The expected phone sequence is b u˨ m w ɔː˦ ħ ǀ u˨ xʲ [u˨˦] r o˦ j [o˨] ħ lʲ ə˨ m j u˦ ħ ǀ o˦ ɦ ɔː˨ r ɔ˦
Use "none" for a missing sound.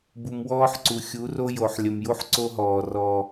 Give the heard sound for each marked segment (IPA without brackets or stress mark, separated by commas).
u˨˦, o˨